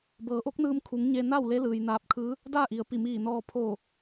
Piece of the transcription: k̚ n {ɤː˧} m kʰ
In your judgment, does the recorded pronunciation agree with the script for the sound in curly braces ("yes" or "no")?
no